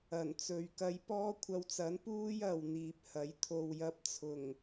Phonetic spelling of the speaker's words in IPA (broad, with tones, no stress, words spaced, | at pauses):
ɐ˨˩nt͡sɵ˨ɥkɐ˧jpɔː˥ kʷʰɐ˧wt͡sɐ˨˥npuː˥j ɐ˨wn̪iː˨p̚hɐ˨˥j t̪ʰo˨wjɐ˧p̚t͡sʰʊ˨˩ŋ